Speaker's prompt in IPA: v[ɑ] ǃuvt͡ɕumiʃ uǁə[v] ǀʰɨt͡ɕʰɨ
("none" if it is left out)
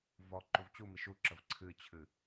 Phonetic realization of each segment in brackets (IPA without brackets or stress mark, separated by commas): ɔ, v